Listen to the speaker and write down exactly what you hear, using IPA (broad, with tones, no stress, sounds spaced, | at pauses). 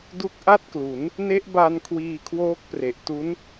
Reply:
d u˦˥ k̚ ʔ a˥˩ t̚ k l u˩˦ n | n e˦˥ ʔ b a˧ n kʰ w iː˧ kʰ w oː˦˥ k̚ p r e˨˩ ʔ t u˦˥ n